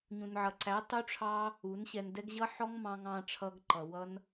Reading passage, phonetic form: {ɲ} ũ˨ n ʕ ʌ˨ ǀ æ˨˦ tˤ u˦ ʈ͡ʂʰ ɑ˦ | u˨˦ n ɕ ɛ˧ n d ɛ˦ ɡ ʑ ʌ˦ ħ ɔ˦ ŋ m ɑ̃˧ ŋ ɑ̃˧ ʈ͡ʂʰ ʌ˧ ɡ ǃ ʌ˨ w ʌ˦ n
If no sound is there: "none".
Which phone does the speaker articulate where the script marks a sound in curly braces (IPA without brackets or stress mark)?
ɲ